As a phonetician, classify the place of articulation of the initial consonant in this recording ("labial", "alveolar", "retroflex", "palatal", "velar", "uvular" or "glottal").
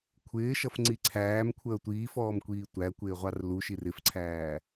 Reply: velar